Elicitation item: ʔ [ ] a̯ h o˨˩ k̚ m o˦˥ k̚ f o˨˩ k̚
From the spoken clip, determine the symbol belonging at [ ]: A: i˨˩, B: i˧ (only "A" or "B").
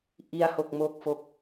B